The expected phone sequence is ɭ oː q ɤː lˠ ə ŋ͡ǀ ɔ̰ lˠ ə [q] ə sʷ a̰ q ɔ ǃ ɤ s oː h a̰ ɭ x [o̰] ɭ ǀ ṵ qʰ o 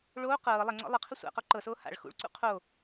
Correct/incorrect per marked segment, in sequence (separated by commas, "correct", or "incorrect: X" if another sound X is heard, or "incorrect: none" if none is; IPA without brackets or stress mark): incorrect: qʰ, incorrect: ṵ